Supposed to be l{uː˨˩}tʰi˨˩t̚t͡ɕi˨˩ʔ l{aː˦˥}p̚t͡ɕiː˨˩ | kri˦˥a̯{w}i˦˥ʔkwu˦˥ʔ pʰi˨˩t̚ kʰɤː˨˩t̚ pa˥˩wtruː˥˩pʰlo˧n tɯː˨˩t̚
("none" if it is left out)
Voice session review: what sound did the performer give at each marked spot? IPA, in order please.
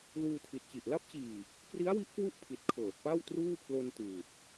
uː˧, a˦˥, w

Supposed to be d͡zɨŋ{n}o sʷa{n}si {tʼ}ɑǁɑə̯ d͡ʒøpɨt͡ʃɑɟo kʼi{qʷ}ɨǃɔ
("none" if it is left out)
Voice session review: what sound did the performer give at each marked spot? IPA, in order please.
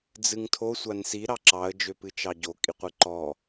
tʰ, n, ɾ, qʷ

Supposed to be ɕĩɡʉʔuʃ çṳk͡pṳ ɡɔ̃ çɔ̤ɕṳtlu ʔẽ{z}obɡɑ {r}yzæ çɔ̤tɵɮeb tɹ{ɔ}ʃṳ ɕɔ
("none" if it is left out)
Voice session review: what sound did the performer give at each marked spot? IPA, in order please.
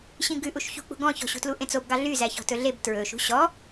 t͡s, ɮ, ɵ

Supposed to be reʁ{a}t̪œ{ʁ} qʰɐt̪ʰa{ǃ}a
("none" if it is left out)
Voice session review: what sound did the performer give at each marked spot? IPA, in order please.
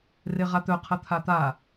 a, none, t̪

